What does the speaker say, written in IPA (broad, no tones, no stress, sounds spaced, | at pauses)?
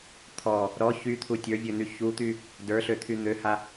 t̪ʰ ɔ | ɾ ɔ ç y t̪ʰ u tʲ ə˞ vʲ ø n̪ y ç u t̪ y | d ə˞ ɬ ø t̪ʰ y n̪ ø h a